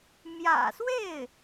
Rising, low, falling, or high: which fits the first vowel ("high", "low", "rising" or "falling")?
low